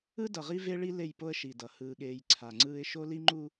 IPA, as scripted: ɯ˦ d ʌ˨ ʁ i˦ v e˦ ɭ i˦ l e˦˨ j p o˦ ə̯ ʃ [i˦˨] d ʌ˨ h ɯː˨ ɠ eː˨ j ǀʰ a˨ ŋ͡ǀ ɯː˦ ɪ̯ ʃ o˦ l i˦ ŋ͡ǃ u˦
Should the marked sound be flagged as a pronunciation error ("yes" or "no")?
yes